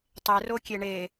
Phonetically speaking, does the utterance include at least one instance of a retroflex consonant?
yes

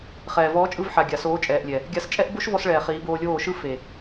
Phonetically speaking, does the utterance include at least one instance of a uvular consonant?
yes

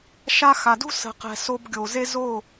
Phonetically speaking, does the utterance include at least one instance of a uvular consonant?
yes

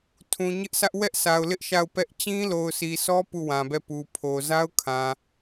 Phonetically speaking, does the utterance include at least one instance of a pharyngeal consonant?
no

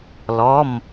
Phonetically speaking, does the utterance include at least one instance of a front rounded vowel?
no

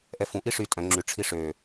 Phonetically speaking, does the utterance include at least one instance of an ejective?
yes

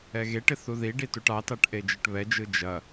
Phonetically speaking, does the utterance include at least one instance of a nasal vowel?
no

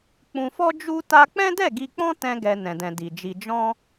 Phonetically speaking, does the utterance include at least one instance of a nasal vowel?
yes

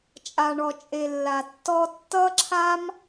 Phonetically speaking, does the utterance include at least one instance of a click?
yes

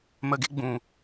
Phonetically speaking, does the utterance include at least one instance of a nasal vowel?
yes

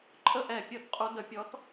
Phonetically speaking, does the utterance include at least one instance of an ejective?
yes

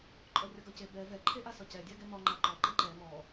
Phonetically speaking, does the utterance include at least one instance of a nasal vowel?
no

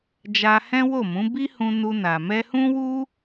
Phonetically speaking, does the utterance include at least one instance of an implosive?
no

